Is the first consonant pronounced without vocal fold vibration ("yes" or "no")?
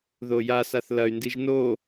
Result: no